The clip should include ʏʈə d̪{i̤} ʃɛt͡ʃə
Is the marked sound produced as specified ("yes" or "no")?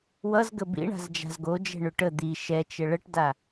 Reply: no